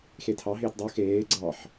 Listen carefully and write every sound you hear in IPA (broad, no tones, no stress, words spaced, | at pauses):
xetʰɑɦeːt dˤu xeː ɡ͡ǀɑħ